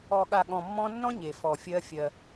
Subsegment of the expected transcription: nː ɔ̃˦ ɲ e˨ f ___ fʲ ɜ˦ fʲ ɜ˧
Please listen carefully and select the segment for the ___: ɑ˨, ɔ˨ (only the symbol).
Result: ɔ˨